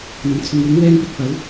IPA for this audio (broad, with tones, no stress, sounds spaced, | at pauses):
n̪ ɐ˨˩ m t͡sʰ ʊ˨˧ ŋ w ɪ˨˥ ŋ w ɛː˧ n p ɪ˨ k̚ p ɐ˨˥ w